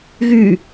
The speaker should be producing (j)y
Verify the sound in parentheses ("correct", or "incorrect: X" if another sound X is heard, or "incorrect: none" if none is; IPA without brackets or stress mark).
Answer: incorrect: ɣ